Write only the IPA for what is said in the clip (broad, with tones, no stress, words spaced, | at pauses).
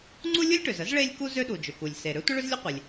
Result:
ŋ͡ǀu˥lʲu˥lʲʈø˩zə˥z ɭe˥lʲ ku˥ zø˥ɗu˩d͡ʒʏ˩ku˩lʲ se˩ ɾø˥tʷə˥ ɭʏ˥zlʲə˥qʷe˩lʲ